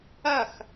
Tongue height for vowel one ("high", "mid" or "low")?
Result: low